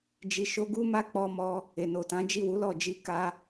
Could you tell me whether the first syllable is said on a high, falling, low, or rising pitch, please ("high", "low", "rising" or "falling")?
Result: low